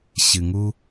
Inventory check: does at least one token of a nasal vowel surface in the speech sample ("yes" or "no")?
no